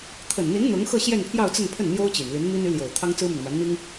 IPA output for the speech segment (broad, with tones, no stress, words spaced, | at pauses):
t̪ʰə˨˩nn̪i˧˥n n̪ʊ˧˥ŋxɤ˥˧ ɕjɛ˥˧npʰjɑ˥˧ʊ̯t͡sə˥˧npʰə˥˩n n̪jo˥ʊ̯t͡ɕi˨˩nly˧˥nmi˥n y˧˥ljo˨˩ʊ̯ t̪ʰɑ˥ŋt͡sɹ̩˥my˨n ma˧˥nn̪i˥ŋ